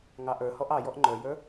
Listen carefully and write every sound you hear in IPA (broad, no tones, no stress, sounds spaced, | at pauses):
ŋ ɑ ʔ ə˞ h ɔ ʔ ɑ j ɔ ʔ ŋ͡ǃ ə˞ j ə˞